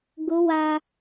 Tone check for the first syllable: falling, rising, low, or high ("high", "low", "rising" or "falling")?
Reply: high